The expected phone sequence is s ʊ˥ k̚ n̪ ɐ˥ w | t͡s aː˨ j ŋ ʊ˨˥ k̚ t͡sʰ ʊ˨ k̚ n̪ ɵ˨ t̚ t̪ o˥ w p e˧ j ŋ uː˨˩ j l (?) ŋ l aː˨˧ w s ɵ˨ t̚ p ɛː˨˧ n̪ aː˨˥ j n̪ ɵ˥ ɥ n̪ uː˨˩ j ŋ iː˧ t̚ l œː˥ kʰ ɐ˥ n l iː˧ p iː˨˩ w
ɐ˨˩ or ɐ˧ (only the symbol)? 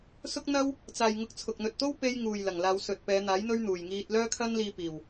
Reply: ɐ˨˩